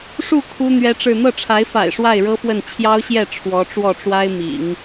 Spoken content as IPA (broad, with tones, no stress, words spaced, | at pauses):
ʂu˥˩ kʰu˥ n̪ɥɛ˥ʈ͡ʂɻ̩˥˧ n̪ɤ˥˩ʈ͡ʂʰa˧˥ɪ̯fa̰˨˩ɪ̯ ʂwa˥˩ɪ̯ɻɤ˥fwə˥˩n t͡ɕʰjɑ˥ʊ̯ɕjɛ˥˩ ʈ͡ʂʰwɔ˧˥ʈ͡ʂwɔ˥˩ʈ͡ʂwa˥ɪ̯ mḭ˨˩˦ŋ